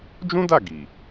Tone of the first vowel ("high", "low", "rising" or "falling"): high